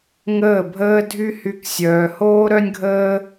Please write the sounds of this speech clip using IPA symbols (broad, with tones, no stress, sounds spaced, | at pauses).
ŋ əː˦˨ bʱ əː˦ dʱ y˦ h y˧ k sʲ œː˨ h oː˦ ɾ œ˦ nʲ ɡʱ əː˦